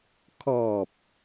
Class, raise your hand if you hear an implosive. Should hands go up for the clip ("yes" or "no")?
no